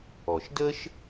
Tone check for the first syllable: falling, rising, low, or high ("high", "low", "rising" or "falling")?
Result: low